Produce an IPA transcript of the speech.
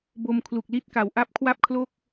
b o˧ m kʰ l u˨˩ k̚ l i˦˥ t̚ k a˩˦ w ʔ a˦˥ p̚ kʰ w a˥˩ p̚ kʰ l o˥˩ k̚

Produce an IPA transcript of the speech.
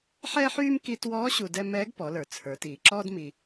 ħ ɛː˥ ħ yː˥ m k i˧ t w ɔː˧˥ ɕ u˧ d ɛ˥ m ɛː˧˥ ɡ p ɔ˩˧ l ə˞˩ t͡sʰ ə˞˩˧ t iː˩ ǁ ɔː˥ d m i˧

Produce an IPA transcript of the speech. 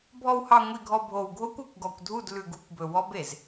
bʱ ɔ˨ w h ɑ˨ ŋʷ i˨ ɡʱ ɔ˨ bʱ o˨ w ɡʱ o˦ kʷ ɵ˨ kʷ ɡ ɔ˨ kʷ dʱ u˦˨ d l ʉ˨ ɡ u˦˨ kʷ b ɵ˨ w ɔ˦ b e˨ z

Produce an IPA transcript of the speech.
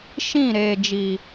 ʃ ĩ˦˨ ɾ eː˨ d͡ʒ iː˨

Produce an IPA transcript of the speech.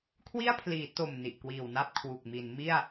kʰ w i˥˩ a̯ pʰ l iː˩˦ t o˨˩ m n i˨˩ ʔ k w iː˨˩ w n a˥˩ p̚ kʰ w u˨˩ k̚ m i˩˦ n m i˥˩ a̯

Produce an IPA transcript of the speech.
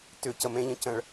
t ʏ c ə m ẽ ʎ ə̃ c ə̃ ɭ

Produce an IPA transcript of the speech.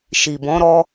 ʃ i˨ b ɔ̃˨˦ ɾ ɔ˧

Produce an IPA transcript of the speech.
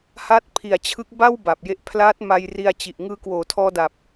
h a˦˥ t̚ pʰ i˨˩ a̯ t͡ɕʰ ɯ˦˥ k̚ b a˥˩ w b a˨˩ p̚ j e˦˥ ʔ pʰ l aː˦˥ t̚ m a˧ j r i˧ a̯ t͡ɕ i˨˩ ʔ ŋ ɯː˧ k w oː˩˦ tʰ ɔː˧ d a˨˩ p̚

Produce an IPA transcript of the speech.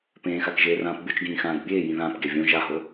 p ẽː x a k ʒ eː r ãː p bʲ o t͡ʃ ɡ ĩː x ãː d bʲ eː j ĩ ð ãː p ɡ e vʲ õ ʒ a ɦ o

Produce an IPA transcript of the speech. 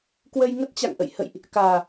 k w ə˧ j ŋ ə˦˥ t̚ t͡ɕ a̰˧˨ ŋ ʔ ə̰˧˨ j h ə̰˧˨ j ʔ | k aː˨˩

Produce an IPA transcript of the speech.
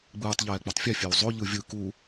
ɡ͡b ɯː tˤ ʎ ɛː k͡p o tˤ fʲ ɛ fʲ e w zˤ o ʎ ɯ vʲ ɯ k u

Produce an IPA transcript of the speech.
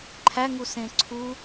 ǃʰ æ ŋ u s ẽ ǀʰ u

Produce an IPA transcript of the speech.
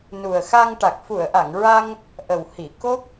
n u˨˩ ə̯ x a˧ ŋ ʈ a˨˩ k̚ f u˨˩˨ ə̯ ʔ a˨˩˨ ŋ ɹ a˧ ŋ | ʔ ə˨˩ w h i˨˩˨ k o˦˥ k̚

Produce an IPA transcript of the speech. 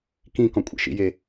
k ĩ k ɔ̃ kʷʼ ḛ ʃ ḭ j e

